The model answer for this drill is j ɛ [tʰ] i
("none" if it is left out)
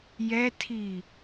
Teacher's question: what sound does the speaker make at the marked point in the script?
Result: tʰ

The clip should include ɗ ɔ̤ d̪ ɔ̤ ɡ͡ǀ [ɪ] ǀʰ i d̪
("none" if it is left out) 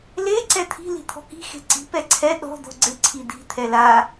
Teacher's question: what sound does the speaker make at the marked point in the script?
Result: ɪ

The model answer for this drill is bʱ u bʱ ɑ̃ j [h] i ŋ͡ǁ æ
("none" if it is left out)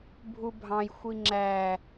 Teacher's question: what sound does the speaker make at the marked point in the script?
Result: xʷ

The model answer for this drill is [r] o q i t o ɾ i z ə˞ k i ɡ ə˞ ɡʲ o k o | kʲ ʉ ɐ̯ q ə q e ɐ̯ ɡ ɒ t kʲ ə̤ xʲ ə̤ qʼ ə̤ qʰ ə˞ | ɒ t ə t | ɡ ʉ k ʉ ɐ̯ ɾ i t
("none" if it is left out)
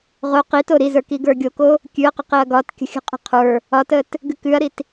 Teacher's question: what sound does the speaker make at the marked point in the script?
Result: ʁ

